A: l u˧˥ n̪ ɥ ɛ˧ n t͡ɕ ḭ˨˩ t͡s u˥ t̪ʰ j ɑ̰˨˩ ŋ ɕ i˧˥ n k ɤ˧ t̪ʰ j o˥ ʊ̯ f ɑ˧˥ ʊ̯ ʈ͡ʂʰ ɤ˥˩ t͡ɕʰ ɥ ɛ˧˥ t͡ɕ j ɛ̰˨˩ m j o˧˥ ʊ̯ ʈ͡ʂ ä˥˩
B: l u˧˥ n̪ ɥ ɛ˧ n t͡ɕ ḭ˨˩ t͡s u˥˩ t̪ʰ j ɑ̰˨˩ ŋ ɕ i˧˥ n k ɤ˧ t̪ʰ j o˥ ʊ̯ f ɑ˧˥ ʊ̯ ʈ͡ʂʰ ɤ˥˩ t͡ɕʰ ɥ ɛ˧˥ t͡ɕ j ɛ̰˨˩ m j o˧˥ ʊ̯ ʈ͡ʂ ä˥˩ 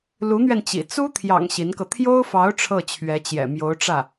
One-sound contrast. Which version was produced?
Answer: A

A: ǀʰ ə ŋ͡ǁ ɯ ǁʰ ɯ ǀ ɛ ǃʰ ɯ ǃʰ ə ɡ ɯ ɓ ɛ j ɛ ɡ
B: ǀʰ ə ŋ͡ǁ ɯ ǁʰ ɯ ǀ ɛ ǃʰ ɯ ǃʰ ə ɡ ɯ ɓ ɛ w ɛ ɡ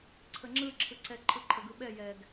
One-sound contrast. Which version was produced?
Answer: A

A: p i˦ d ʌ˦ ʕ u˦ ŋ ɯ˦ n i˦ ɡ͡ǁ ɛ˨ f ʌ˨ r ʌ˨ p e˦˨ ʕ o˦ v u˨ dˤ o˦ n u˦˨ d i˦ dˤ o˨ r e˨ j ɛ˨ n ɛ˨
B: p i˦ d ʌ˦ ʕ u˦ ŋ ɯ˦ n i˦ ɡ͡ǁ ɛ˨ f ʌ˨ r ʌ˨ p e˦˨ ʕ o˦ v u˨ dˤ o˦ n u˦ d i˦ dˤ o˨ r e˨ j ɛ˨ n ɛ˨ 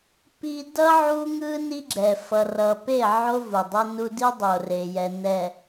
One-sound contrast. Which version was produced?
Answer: B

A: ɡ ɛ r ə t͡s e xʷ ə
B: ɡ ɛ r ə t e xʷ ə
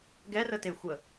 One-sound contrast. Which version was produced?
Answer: B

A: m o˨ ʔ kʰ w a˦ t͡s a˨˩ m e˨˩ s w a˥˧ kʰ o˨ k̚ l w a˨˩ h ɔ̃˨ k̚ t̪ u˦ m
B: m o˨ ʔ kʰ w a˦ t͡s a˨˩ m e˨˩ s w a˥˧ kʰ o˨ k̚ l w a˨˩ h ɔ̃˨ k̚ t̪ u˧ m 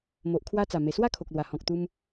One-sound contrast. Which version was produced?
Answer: B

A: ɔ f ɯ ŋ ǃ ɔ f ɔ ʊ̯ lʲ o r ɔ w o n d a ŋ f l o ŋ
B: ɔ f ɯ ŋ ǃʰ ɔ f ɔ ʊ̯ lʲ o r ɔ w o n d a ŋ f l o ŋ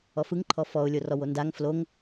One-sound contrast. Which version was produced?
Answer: B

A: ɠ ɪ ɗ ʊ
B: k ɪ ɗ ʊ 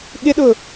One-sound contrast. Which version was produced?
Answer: A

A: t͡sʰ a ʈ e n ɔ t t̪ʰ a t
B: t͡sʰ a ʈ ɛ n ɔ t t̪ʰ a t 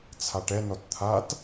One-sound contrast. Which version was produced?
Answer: B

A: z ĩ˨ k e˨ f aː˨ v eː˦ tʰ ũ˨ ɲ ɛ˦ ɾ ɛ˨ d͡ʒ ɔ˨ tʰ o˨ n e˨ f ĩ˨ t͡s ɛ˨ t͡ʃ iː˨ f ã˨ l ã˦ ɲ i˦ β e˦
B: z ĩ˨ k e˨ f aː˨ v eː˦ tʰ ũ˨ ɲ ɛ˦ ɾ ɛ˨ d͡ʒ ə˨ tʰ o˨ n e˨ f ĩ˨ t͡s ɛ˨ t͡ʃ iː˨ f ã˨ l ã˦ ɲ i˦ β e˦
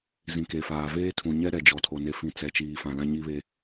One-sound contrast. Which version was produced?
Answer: A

